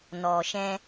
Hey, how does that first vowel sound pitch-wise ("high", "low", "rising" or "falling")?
low